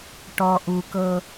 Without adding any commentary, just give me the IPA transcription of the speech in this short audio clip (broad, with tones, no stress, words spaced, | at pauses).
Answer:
ʈɔ˨ʔu˨ kɤ˦